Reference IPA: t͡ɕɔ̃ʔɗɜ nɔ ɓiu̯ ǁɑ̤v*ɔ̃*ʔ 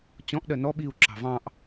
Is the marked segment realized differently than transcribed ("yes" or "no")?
yes